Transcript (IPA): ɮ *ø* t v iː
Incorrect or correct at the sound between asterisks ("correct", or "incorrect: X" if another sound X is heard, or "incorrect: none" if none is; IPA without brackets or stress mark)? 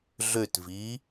correct